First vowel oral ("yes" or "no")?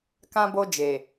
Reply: no